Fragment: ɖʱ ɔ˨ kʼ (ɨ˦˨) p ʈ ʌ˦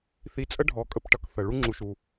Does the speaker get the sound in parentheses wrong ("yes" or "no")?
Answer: yes